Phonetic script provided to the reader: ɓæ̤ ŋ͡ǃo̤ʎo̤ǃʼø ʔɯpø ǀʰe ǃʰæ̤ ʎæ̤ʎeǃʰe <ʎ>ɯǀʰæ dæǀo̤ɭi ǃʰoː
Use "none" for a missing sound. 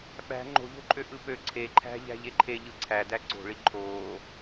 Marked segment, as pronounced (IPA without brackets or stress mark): ʎ